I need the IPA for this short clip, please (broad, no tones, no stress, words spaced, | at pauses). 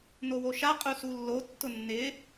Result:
nowoʃa qʼusulːo tːʊnːɪː